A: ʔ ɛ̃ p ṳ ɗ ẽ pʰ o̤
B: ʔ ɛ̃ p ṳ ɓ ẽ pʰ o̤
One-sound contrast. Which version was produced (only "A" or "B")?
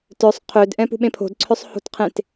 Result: B